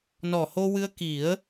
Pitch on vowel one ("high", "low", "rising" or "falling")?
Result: low